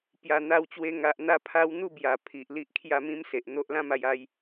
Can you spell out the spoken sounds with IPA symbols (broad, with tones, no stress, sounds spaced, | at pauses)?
p j a˨˩ n̪ a˧ w t͡ɕ w e˧ ŋ a˨ ʔ n̪ a˧ pʰ a˧ w n̪ u˥˧ b j a˨˩ pʰ i˨ ʔ l i˦ ʔ kʰ j a˥˧ m ĩ˦ m s e˨ ʔ n̪ o˦ ʔ l ã˦ m a˧ j a˧ j